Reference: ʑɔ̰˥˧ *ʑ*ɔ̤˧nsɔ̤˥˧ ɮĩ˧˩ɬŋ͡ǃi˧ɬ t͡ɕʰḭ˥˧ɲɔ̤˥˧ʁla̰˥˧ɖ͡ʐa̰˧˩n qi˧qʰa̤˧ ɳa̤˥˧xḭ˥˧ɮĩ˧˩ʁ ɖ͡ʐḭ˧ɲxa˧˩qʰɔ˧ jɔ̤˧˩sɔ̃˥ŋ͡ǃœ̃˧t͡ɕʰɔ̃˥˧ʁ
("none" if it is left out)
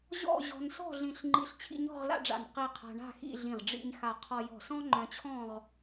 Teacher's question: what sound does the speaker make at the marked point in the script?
ʑ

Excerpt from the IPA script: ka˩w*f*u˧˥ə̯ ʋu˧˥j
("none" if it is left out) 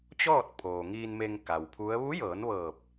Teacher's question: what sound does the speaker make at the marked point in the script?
pʰ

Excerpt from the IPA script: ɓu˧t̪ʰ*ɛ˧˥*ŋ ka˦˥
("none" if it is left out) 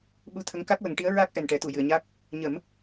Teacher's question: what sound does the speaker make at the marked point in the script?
ə˧˥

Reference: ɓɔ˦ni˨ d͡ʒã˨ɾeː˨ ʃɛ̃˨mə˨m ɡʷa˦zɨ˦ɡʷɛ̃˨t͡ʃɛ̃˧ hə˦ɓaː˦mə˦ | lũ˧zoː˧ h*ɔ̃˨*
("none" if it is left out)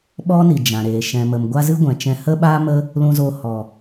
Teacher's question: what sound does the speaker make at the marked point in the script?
ɔ˨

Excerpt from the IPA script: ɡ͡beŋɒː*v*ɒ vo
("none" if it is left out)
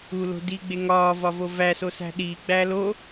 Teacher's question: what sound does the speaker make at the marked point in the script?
v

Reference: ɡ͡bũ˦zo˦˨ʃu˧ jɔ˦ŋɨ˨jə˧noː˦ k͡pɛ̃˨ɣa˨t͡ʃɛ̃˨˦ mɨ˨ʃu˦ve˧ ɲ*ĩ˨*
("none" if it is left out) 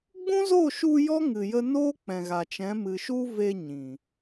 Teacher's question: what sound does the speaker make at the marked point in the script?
ĩ˨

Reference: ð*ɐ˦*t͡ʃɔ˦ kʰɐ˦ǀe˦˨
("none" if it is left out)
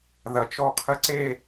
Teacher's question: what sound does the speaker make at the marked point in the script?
ɐ˨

